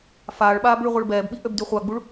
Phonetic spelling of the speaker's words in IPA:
f aː ɭ ɓ aː b ɭ y ʁʷ ɛ ɭ b ɛː b ɓ i ʔ ø b d y χʷ a ɡ͡b u ɭ

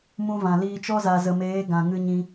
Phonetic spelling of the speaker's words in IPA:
m ũ˧ v ã˨ l iː˧ t͡ʃ ɔ˦ z a˨ z ə˨ m eː˨˦ ɡ ã˨ ŋ ɨ˧ ɲ ĩ˧

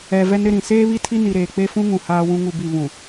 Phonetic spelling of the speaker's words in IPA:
ɛ˨ v ɛ˦ n ɾ ɪ˦ ɾ ĩ˨ s eː˦ β i˦ tʰ i˦ n i˨ ɾ eː˨ k͡p e˦ f ũ˦ ŋ ũ˨ h aː˦ w ũ˦ ŋ u˦˨ b i˦˨ β ũ˨

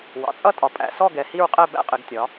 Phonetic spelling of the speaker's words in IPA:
w ɑ̰˩˧ t͡sʼ ʌ˥˨ tʼ ɒ˩˧ pʼ æ̰˩˧ s ɔ˥˨ ɡ ɛ˩˧ h i˥˨ ɹ qʼ ɛ˥˨ b æ̰˥˨ qʼ ɪ˩˧ ɡ tʲ ɒ˩˧

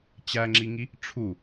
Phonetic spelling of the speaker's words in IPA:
t͡ɕ æ ŋ͡ǁ i ŋ i | ʈ͡ʂʰ u

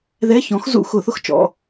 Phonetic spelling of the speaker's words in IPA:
ð ɛ˧˥˧ ç ɔ̃˨˥ x z ṵ˧˩˧ x ʊ˧˩˧ θ ʊ˦˥ x t͡ʃ ɔ̰˩˧˩

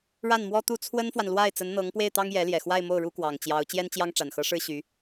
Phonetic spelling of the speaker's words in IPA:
ɻ a˥˩ n m w ɔ˥ t̪ u˥˩ t͡sʰ w ə˥ n f w a˨ n l w a˥˩ ɪ̯ t͡s ə˧˥ n n̪ ɤ˧˥ ŋ p w e˥˩ ɪ̯ t̪ ɑ˥ ŋ j ɛ˧˥ l j ɛ˨˩ x w a˥˧ ɪ̯ m o˥˩ ʊ̯ ɻ u˥ k w ɑ˨˩ ŋ t͡ɕ j ɑ˧˥ ʊ̯ t͡ɕ j ɛ˥ n t͡ɕ j ɑ˥ ŋ ʈ͡ʂ a˨˩ n x ɤ˧˥ ʂ ɻ̩˥ ɕ y˧˥

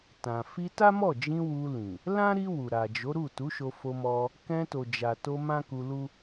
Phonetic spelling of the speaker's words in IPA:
t ã˨ f i˧ t a˦ m ɔ˦˨ d͡ʒ ĩ˧ w u˧ l ĩ˨ | l ã˦ ɾ i˧ w u˨ ɾ a˨ d͡ʒ o˨˦ ɾ u˦˨ t u˨˦ ʃ o˧ f o˧ m ɔ˧ | k ɛ̃˧ t o˨ d͡ʒ a˨ t o˧ m ã˦ k u˧ l u˦

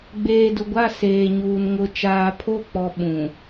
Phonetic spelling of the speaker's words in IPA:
ɡ͡b eː˨ d ʊ˨ ɡʷ a˦˨ s eː˨ ɲ uː˨ n ŋ ʊ˨ t͡ʃ aː˨ pʰ o˦˨ k͡p ɔ˨ ɓ ũ˨

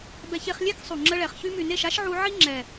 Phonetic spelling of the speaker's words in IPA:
b ɛ˧ ç e˧ χ lʲ e˦ k sˤ u˨ ŋ͡ǁ ə˧ ɭ ɛ˨ χ ç y˧ m y˨ n e˦˨ ʃ a˦ ʃ ʕ u˧ ʕ i˦ ŋ͡ǁ ɛ˨

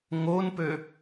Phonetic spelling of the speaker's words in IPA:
ŋ o n p ø

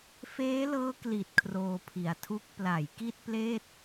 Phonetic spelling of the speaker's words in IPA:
f eː˦˥ l ɤː˦˥ k l i˨˩ t̚ kʰ r oː˧ pʰ i˨˩ a̯ tʰ u˦˥ k̚ p l a˩˦ j k i˥˩ t̚ p l eː˥˩ t̚

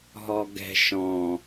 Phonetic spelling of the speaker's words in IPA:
ɦ ɔ ɡ ɛ̤ ʃ ɔ̃

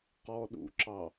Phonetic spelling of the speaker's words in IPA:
q ɔ ɗ ṵ ǁ ɑ

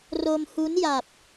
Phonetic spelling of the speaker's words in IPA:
r o˧ m h u˦˥ n j a˨˩ p̚

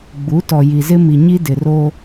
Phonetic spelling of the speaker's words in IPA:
ɡ͡b u˨˦ t ɔ˨ j i˨ z ɪ˦ m i˨ ɲ i˦ d ɪ˨ r o˦

